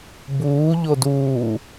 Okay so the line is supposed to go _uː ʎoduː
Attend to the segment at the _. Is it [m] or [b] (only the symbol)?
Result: b